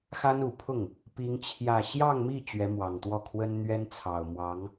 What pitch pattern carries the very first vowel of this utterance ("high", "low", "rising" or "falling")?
high